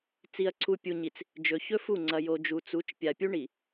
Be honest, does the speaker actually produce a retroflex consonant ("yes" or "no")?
yes